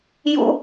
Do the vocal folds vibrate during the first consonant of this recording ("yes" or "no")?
yes